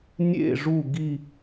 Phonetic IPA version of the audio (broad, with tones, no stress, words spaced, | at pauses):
nʲḛ˦˨ʐu˦˨ɡi˦˨